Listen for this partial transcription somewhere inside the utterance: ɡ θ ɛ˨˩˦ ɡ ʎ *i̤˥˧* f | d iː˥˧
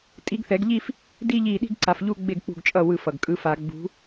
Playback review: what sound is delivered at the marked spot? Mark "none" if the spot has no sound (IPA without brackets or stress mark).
i˥˧